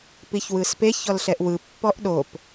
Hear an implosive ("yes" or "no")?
yes